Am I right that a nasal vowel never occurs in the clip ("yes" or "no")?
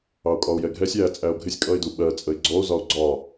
yes